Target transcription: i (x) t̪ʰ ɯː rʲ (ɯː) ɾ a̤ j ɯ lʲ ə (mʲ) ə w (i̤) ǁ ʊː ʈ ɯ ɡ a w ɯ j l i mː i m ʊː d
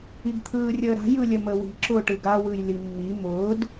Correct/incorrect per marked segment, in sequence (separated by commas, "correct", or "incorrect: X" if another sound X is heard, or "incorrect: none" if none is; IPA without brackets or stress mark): incorrect: ɡ, incorrect: əː, incorrect: m, correct